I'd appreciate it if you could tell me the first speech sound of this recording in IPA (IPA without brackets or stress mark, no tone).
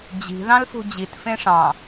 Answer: d͡ʑ